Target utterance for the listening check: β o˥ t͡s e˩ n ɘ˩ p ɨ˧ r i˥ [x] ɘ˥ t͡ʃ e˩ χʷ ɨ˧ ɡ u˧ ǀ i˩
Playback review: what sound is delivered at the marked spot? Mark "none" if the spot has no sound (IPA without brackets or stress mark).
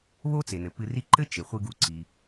ǃ